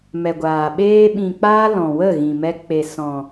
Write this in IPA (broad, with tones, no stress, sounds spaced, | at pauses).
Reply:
m ɛ˨ ɡʷ aː˨ ɓ eː˦ ɓ ĩ˨ k͡p aː˦ l ɔ̃˨ w ə˦˨ ɣ ĩ˨ m ɛ˧ k͡p e˨ s ɔ̃˨